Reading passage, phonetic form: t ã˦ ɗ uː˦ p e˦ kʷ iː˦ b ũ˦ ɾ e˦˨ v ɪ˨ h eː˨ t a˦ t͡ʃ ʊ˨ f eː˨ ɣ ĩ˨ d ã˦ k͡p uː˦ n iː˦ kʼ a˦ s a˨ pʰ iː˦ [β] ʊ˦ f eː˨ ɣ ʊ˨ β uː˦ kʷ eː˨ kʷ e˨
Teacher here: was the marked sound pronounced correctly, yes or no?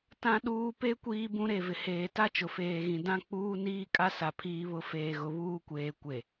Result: yes